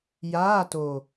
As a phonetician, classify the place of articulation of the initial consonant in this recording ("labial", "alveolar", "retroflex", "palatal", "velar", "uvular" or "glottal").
palatal